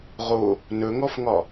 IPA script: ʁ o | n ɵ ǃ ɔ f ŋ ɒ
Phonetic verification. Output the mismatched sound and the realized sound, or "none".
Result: ǃ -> ŋ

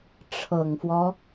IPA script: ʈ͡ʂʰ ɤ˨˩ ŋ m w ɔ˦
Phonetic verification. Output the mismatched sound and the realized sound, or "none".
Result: m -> f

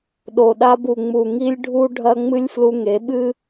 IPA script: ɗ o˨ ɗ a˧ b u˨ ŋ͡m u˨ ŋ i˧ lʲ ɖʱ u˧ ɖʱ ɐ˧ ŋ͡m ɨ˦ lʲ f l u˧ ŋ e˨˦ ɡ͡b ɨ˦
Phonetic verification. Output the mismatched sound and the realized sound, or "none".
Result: ɡ͡b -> ɓ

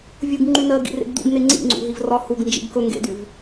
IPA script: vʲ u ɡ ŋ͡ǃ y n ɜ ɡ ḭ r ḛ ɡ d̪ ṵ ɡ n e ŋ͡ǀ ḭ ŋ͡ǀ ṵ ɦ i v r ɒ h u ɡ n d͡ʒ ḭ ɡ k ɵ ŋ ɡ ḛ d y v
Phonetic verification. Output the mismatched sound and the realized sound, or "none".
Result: none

